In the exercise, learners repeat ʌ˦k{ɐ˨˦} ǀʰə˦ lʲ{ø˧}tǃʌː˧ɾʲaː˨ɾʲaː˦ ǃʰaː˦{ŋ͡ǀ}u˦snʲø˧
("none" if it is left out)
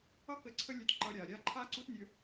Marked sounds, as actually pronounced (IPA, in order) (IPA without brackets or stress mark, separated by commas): ə˨˦, ø˧, ǀ